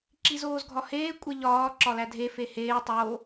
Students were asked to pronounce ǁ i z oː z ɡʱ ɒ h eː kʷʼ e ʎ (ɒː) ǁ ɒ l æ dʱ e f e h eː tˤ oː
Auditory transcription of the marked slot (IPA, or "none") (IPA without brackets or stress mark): ɒː